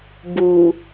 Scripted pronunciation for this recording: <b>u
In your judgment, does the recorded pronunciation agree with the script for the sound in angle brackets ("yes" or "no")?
yes